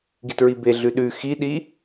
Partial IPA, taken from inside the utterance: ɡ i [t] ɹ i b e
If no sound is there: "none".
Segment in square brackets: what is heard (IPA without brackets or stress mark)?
t